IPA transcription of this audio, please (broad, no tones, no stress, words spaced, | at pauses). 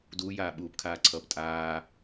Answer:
duːjaː ɓuːpkʰaːǀʰʌːp tʼaː